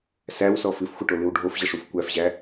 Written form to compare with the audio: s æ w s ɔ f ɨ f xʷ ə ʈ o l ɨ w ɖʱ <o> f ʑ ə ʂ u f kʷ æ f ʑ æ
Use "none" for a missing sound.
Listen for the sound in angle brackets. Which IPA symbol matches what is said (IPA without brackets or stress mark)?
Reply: o